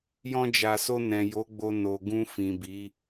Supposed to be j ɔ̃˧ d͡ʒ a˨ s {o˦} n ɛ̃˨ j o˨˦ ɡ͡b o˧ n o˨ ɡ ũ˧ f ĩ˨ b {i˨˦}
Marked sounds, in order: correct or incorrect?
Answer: incorrect: o˧, correct

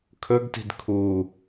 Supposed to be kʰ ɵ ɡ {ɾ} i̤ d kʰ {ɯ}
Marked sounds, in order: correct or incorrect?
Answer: incorrect: t, incorrect: u

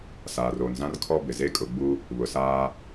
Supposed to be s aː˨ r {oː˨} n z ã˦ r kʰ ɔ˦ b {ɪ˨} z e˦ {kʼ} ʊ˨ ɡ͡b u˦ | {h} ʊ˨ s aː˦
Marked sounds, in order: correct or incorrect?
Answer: correct, correct, correct, incorrect: β

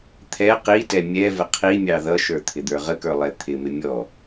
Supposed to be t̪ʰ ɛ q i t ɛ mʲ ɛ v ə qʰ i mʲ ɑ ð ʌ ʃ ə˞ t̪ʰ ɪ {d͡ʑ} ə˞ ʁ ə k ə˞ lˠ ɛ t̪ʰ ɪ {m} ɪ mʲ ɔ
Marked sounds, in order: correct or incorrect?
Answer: incorrect: d̪, correct

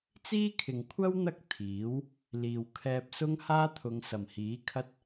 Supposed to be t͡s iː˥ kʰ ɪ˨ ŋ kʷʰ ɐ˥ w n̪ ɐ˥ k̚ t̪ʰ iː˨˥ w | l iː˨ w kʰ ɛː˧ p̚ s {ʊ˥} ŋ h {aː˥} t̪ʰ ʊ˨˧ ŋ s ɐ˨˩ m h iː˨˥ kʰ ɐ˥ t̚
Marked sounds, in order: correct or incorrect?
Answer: correct, correct

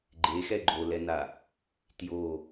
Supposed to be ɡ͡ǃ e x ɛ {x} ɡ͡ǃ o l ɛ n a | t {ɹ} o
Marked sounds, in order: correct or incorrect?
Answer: incorrect: none, incorrect: j

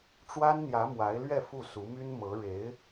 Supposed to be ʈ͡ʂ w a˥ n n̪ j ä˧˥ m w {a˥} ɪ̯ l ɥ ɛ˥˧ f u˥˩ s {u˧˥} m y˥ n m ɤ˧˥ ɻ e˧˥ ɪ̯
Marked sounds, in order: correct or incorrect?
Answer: incorrect: a˧˥, correct

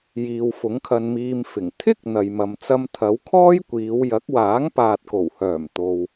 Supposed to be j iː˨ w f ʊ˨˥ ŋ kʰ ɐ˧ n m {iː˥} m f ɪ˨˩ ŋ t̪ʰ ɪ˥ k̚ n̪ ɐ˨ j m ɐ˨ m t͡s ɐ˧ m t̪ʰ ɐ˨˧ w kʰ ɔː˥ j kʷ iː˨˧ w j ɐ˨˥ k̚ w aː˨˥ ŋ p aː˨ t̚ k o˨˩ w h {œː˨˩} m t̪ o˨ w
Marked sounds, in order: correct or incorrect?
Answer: incorrect: iː˧, correct

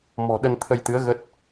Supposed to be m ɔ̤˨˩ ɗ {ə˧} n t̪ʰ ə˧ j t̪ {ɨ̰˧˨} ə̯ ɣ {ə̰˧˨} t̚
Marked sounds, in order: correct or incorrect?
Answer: correct, incorrect: ɨ˨˦, incorrect: ə˦˥

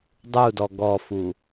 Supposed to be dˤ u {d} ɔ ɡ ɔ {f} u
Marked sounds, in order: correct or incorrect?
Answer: correct, correct

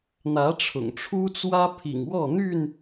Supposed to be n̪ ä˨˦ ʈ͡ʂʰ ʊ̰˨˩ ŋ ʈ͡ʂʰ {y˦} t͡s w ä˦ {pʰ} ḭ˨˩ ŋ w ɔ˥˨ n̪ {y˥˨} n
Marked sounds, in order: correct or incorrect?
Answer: incorrect: u˦, correct, correct

